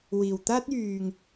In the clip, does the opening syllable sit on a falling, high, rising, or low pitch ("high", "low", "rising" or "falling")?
low